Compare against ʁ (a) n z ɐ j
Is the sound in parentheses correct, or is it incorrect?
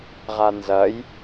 correct